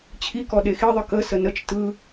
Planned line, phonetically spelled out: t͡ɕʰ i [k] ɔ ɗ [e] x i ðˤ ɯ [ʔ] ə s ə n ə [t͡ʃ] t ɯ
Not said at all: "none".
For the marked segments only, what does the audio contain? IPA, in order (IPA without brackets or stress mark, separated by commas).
k, e, k, t͡ʃ